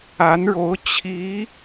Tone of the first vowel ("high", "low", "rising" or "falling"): rising